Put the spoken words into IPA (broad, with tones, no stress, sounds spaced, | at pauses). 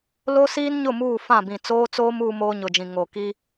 l o˦ s iː˦ n ɲ ʊ˦˨ m uː˦˨ f ã˦˨ b ĩ˨ t͡s oː˦ t͡s oː˦ m uː˦ m oː˦ ɲ ʊ˨ d͡ʒ ĩ˨ ŋ o˨ k i˦